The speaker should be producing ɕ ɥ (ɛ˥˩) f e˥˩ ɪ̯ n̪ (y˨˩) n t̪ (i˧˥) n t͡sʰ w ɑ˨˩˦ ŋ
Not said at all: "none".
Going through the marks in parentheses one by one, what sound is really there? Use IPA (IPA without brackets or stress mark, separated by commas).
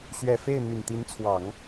ɛ˨˩, y˨˩, i˧˥